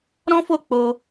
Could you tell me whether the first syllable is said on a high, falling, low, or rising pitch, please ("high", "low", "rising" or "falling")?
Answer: high